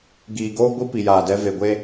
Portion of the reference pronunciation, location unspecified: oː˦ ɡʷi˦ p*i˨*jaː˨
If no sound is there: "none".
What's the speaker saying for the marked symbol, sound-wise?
i˨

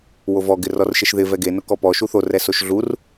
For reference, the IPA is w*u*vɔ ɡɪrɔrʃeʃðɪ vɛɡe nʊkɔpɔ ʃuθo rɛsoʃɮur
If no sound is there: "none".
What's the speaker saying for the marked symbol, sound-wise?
o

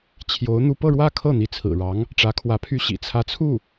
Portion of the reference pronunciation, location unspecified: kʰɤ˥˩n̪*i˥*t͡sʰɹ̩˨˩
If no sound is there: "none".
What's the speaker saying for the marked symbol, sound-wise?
i˧˥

